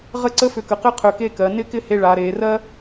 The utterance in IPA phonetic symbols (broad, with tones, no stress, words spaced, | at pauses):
ʁə˥˧ǀə˥fʏ˧˩kə˩˧ qɪ˥qʰʏ˧˩ke˥˧kɜ˩˧ nɪ˥˧kɪ˥˧he˧ ɭa˩˧ ɾe˩˧ rɜ˥